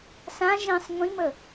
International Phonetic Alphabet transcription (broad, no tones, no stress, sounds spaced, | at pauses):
s ã ʒ ĩ sˤ ŋʷ ĩ m ə